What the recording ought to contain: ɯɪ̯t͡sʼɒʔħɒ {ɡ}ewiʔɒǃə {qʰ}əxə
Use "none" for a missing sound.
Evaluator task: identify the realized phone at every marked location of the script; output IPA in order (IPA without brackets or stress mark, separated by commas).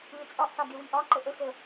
ɡ, ʔ